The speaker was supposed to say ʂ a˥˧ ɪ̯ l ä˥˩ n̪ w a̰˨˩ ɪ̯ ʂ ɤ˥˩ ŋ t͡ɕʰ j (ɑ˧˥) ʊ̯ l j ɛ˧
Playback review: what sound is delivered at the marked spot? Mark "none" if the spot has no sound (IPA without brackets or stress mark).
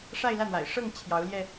ɑ˧˥